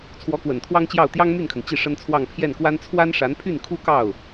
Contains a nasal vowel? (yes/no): no